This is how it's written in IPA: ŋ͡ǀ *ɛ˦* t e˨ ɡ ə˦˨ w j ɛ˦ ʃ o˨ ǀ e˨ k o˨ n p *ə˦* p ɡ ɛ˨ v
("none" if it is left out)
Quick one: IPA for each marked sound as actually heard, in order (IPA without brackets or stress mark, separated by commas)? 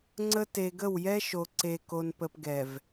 ə˦, ə˨